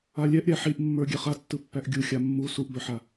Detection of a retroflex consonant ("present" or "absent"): absent